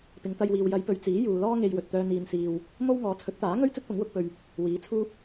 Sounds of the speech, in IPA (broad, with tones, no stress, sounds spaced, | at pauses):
p ɪ˨˧ ŋ t̪ ɐ˧ j w iː˨ w j ɐ˨˧ j p ɵ˨ ɥ t͡s iː˨˥ j uː˨ l ɔː˥ ŋ e˧ j w ɵ˨ t̚ t̪ œː˧ n̪ iː˧ n s iː˧ w | m o˥ w ŋ ɔː˨˥ t͡sʰ ɵ˨˥ t̚ t̪ aː˨˥ ŋ ɵ˥ ɥ t͡s ɵ˥ t̚ p ʊ˨˥ ŋ w ʊ˨˥ k̚ p ɵ˧ ɥ | w iː˨˥ t͡sʰ uː˥ p̚